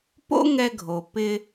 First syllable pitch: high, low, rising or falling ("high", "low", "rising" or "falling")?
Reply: high